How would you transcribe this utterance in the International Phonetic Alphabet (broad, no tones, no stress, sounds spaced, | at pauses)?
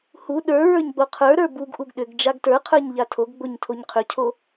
h u ɗ ə˞ ɹ ə˞ ɲ ɡ͡b o qʰ ə˞ ɾ ə˞ b u ɡ ʔ u ɡ ɗ ʏ ɡ d͡ʒ a ɡ t ə˞ qʰ ə˞ ɲ ʎ a tʰ o ɡ ɡ͡b o ɲ tʰ o ɲ qʰ ʏ cʰ o